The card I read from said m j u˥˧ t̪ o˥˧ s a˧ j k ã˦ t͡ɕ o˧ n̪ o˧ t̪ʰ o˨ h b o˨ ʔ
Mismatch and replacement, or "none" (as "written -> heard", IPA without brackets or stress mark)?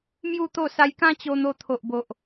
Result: h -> ʔ